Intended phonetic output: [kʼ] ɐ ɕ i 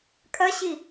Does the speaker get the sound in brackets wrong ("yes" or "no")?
no